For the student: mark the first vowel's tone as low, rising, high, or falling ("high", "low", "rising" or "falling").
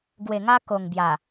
low